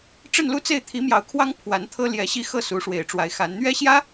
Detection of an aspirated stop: present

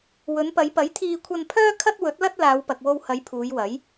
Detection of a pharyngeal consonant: absent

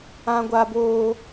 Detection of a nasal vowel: present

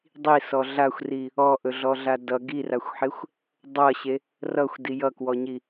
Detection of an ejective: absent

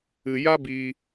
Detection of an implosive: absent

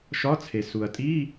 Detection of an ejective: present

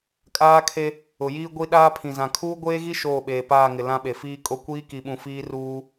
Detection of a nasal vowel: present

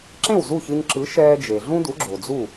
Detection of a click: present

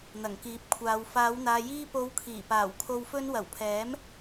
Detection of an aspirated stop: present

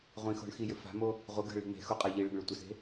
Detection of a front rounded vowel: present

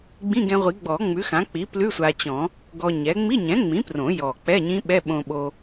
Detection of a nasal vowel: present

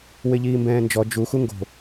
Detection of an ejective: absent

